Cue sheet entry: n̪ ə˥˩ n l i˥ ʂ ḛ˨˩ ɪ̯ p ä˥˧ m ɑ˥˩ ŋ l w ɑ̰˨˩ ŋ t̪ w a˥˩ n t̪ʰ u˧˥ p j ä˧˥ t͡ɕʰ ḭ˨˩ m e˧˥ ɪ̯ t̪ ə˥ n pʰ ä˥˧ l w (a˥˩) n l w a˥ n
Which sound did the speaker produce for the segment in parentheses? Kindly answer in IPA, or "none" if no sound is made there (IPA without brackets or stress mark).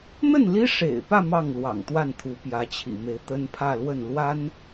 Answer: ə˥˩